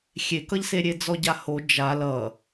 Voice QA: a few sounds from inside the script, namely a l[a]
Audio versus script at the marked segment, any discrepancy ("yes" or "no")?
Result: yes